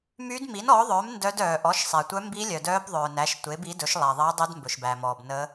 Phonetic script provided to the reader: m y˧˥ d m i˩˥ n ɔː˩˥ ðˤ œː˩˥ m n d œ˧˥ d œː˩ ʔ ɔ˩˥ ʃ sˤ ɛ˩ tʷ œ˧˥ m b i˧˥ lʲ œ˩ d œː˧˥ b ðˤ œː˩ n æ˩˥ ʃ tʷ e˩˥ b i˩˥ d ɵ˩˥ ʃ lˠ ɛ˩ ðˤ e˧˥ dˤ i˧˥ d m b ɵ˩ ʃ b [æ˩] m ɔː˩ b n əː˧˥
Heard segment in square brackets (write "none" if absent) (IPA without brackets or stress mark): æ˩